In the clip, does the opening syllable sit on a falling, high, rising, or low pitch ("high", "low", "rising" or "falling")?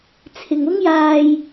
low